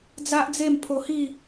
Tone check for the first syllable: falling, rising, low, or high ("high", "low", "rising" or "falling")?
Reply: high